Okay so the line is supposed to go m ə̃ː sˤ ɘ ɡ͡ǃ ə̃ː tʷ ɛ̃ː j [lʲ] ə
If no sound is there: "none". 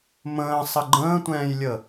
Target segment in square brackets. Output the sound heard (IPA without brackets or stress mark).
lʲ